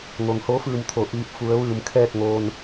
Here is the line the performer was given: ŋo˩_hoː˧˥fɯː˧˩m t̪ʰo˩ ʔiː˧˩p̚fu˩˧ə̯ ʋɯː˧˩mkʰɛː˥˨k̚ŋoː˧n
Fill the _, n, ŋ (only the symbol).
ŋ